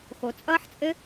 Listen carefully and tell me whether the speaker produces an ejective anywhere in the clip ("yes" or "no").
yes